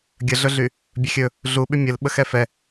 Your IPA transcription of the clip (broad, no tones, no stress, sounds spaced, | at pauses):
ɡʲ ə ɮ ɵ ɮ y | bʲ ɵ xʲ ɵ | ɮ u ɓ y mʲ ə l ɓ ə x ɛ f ɛ